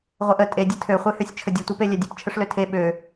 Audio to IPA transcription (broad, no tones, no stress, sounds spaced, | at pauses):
ʁʷ ɛ ʔ ə tʼ e dʲ ə tʰ ø χʷ e h ø sʲ t͡ʃʰ ə dʲ ə tʷ ɛ p e lʲ ɛ dʲ ə p t͡ʃʰ ə ʂ l ø tʰ e ɓ ø